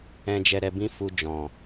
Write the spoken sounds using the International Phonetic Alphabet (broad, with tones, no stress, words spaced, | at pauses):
ɛ̃˧d͡ʒɛ˧ɾɛ˧ bĩ˦fu˧d͡ʒɔ̃˨